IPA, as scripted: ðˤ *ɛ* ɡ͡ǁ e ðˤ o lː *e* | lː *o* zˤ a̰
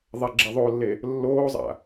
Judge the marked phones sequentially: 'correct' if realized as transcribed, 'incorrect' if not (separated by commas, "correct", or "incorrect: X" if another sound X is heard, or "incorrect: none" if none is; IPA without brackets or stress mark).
correct, correct, incorrect: oː